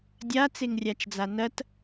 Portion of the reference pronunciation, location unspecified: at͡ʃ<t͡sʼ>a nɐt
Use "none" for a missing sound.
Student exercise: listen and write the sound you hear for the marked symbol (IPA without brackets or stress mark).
d͡z